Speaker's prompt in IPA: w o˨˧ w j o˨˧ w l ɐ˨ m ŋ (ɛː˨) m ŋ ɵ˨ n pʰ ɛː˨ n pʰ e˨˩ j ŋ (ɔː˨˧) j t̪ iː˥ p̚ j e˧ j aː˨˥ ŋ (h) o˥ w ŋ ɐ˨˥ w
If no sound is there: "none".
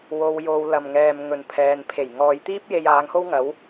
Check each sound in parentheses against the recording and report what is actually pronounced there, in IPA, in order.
ɛː˨, ɔː˨˧, h

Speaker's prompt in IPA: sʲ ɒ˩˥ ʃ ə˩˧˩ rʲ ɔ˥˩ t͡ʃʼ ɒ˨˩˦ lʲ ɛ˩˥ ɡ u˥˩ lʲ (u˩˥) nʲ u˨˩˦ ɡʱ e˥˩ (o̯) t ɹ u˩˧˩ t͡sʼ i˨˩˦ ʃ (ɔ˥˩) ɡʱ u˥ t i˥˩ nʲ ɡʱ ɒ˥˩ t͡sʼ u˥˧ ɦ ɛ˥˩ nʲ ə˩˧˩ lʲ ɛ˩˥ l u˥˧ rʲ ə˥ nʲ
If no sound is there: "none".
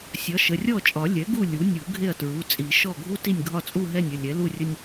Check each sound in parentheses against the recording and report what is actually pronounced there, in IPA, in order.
u˩˥, ɐ̯, ɔ˥˩

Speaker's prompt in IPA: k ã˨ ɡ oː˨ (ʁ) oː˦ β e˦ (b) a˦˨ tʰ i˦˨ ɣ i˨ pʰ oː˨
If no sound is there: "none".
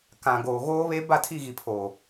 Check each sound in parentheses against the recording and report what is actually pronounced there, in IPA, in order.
ɣ, b

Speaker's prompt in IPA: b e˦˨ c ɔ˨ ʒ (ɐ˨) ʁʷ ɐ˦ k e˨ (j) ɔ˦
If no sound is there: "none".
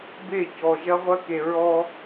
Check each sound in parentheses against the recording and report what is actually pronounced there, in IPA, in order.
ɐ˦, ɹ

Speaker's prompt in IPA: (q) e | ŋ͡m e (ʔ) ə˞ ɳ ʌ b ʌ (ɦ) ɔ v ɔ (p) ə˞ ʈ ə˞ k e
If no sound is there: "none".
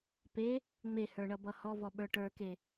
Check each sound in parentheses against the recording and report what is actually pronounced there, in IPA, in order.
p, h, h, ɓ

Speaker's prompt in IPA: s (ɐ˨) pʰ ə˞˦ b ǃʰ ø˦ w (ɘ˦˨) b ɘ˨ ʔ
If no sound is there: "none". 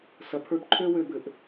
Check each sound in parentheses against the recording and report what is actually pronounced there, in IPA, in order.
ɐ˨, ø˦˨

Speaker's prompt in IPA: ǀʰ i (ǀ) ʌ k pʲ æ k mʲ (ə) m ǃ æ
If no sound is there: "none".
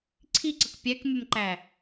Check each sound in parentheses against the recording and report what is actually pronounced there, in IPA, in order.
ǀ, ə

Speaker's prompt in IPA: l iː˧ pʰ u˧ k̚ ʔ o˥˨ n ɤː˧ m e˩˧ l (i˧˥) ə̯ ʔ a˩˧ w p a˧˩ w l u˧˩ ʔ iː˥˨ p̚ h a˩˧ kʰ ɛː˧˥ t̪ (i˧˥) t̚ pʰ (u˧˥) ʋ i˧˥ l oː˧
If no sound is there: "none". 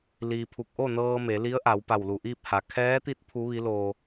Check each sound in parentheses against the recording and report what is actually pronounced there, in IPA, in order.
i˧˥, i˧˥, u˧˥

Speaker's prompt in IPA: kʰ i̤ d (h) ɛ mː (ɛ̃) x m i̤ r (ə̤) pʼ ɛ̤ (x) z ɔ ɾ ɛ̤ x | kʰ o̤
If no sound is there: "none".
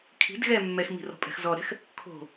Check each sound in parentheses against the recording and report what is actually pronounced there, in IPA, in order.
ɣ, ɛ, ɔ̤, x

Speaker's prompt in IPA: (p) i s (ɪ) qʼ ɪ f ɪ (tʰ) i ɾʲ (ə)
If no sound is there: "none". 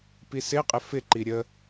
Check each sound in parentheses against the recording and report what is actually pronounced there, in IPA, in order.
p, ɪ, ǃ, ə

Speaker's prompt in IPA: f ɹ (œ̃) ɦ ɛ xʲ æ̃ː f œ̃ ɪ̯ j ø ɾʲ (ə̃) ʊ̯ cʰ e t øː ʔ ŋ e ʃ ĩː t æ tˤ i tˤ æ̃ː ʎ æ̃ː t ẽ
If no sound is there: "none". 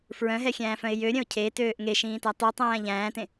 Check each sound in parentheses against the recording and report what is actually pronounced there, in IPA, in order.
œ̃, œ̃

